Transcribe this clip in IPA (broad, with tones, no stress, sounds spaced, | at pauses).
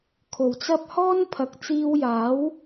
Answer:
kʰ o˨˩ w t͡s ɐ˥ p̚ h ɔː˥ n pʰ ɐ˨˥ k̚ t͡s iː˧ w j aː˨˥ w